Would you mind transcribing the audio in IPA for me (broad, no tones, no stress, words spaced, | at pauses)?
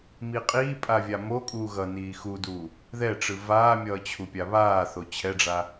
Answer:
miqʼiːpʼa vʲamokʼuː ɣʌ niːxuduː | ðɛʈ͡ʂɯ vaːmʲʌː t͡ɕʰupʲaβaːθo t͡ɕʰɛɖ͡ʐa